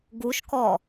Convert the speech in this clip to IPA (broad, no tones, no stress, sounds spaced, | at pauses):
ɡ u ʃ k ɔ